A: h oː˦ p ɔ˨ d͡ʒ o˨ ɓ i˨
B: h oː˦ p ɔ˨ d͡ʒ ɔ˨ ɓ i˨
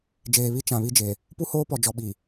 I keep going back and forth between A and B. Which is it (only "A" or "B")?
B